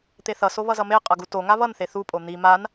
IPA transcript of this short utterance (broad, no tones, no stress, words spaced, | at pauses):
t̪eθʌso βʌzʌme qʼʌɡuto ŋaβʌnθe θupʼo n̪i man